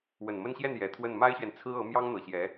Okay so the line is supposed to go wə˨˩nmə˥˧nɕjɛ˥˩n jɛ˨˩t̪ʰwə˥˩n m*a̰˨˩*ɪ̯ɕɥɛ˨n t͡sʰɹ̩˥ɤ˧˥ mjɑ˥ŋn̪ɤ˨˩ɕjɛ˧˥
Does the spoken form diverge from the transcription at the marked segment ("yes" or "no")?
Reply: yes